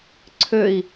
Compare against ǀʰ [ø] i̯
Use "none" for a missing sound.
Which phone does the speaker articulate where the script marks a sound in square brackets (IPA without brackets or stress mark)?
ø